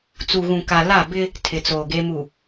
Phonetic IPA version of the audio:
t͡s u˨ ɣ ũ˨ k a˨ l a˦˨ b ɪ˦ | tʰ ɪ˨ t͡s oː˨ ɡ e˦ m u˨

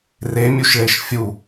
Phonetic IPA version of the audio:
r e mʲ u ʃ ɭ e ʃ fʲ u

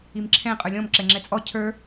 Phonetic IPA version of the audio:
i m ǁʰ ɛ̃ qʼ ə˞ lʲ ɔ̃ m ǁ ɛ ŋ͡ǁ ɛ t͡sʼ ɔ cʰ ə˞

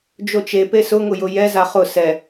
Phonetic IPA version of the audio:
d͡ʒ o t͡ʃ e p e s ʊ ŋ ʊ j ʊ j ɛ z a χ ʊ s ɛ

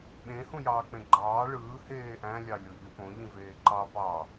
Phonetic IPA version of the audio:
ɓ ẽ h ũ j ɑː k͡p ẽ ɡ͡ǃ ɑː ɭ ɯː h eː ʔ æ̃ lʲ ɑ lʲ o ʎ y p õ ʎ ĩ v eː ǃ ɑ p ɑ

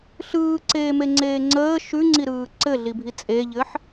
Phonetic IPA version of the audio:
ɬ ɯː ǀ eː m e ŋ͡ǀ eː ŋ͡ǀ əː ʃ ʉ ŋ͡ǀ i ɾ ɯː ǀ ɘ ɮ i bʱ i t͡sʼ e ʎ ɘ ħ

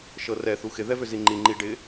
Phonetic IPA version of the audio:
ʃ ɤ r ɛ θ u x ɪ ð ɛ v ʏ z i ŋ͡ǃ i ŋ͡ǃ i ɖ ɪ

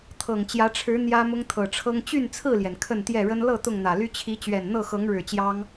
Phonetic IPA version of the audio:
t̪ʰ ɤ˨˩ ŋ t͡ɕ j ä˨˦ ʈ͡ʂʰ ɻ̩˨˦ n̪ j ä˦ m ʊ˦ ŋ t̪ʰ ɤ˨˩ ʈ͡ʂʰ ɤ˦ ŋ t͡ɕ y˥˨ n t͡sʰ ɹ̩˥˨ l j ɛ˩ n kʰ ə˥˨ n t̪ j ɛ˥˨ ɻ ə˦ n l ɤ˥˨ t̪ ʊ˥˨ ŋ n̪ ä˨˩ l y˦ t͡ɕʰ i˨˦ t͡ɕ ɥ ɛ˨˩ n n̪ ɤ˥˨ x ɤ˨˦ ŋ ɻ ɻ̩˨˩ t͡ɕ j ɑ˦ ŋ

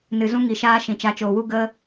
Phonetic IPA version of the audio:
n ɨ˨ z ũ˧ ŋ i˨ ʃ aː˦ ʃ ĩ˨ t͡ʃ a˨˦ t͡ʃ oː˨ w u˦ ɡ ə˦

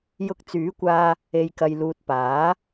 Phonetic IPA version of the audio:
j ʊ˧ k̚ t͡s yː˨˥ kʷ aː˧ | e˨ j k ɐ˨ j l uː˨ t̚ p aː˨˥

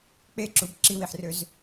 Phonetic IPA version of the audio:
k͡p e ǁ u b ǁ i w i ħ r ø z

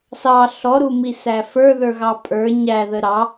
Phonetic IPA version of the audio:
s ɑ ɬ ɔ ɾ u m i s æ f ə˞ ð ə˞ ɣ ɑ pʼ ə˞ ɲ æ ð ə ɾ ɑ

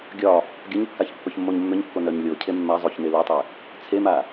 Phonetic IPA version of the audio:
ɡʲ ɒ | ɡʲ ʌ ɲ kː a ç pː œ ç mː o ɲ mː ʏ ɲ kː o n œ ɲ lʲ o cʰ e mː a zˤ o ç n e l œ tˤ e | t͡sʰ e m a

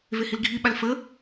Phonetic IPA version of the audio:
v e h i l ɡʱ i ɓ a l f ə

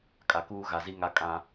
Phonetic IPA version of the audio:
kʼ a˨ k uː˦ ɣ a˨ z i˦ ŋ a˦ kʼ ã˦

